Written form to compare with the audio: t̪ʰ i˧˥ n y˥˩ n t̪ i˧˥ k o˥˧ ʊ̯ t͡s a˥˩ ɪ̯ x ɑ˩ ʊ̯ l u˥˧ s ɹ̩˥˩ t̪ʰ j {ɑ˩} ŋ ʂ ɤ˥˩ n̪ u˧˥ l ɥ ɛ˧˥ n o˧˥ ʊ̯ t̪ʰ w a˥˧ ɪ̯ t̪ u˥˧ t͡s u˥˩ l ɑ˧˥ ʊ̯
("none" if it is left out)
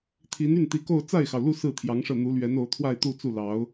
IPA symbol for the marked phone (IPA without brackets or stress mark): ɑ˧˥